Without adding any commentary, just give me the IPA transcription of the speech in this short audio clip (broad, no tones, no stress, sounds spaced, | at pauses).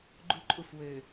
ɡ͡ǃ u ǃʼ u f w ø